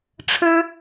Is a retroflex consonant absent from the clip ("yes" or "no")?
no